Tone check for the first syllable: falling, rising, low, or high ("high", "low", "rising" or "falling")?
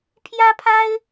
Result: high